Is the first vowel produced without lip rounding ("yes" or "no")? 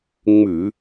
no